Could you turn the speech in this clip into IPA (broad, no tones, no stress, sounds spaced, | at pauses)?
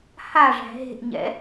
h a ʐ æ̤ ɦ e̤ ʔ ɲ ɛ̰